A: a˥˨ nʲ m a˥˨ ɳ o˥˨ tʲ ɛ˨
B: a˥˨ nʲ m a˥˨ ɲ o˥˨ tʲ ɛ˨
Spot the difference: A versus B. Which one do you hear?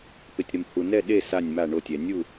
A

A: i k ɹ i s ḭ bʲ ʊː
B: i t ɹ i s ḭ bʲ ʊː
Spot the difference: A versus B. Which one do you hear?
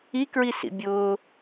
A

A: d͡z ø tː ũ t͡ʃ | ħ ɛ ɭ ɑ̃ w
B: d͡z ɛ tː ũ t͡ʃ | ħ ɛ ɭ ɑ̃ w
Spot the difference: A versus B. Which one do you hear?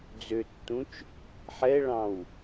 A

